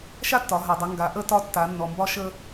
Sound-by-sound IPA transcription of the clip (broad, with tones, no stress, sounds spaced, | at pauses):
ʃ a˥ tː ɒ˩˧ ɦ a˩ dˤ ə˩˧ ŋ ɡ a˩˧ ʔ ə˧ t ɒ˧ tː a˩˧ nː ɔ˩ m b ɒ˧ ʃ ə˧